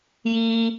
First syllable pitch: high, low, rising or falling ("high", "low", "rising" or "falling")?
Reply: high